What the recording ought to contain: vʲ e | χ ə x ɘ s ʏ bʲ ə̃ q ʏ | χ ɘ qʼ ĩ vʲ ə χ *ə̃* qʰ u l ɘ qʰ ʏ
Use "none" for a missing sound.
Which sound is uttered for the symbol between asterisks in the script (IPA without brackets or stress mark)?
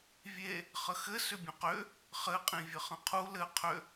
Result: ə̃